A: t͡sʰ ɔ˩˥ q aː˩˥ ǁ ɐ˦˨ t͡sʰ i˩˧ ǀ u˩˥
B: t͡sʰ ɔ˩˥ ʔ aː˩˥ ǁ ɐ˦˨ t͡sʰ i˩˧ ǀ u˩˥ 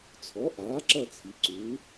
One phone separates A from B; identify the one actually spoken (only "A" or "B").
B